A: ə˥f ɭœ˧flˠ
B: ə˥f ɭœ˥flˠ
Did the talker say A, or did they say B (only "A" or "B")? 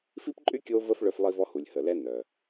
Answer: B